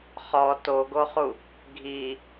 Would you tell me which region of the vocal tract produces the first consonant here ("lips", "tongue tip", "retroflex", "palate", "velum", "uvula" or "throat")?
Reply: uvula